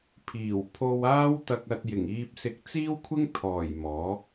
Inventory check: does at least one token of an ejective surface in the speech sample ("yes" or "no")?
no